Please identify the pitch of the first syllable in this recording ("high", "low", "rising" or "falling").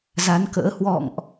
rising